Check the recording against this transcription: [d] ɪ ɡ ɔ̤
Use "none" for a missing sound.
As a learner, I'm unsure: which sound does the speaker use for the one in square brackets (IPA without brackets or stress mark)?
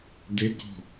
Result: d